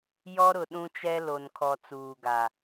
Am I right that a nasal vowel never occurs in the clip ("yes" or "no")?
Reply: no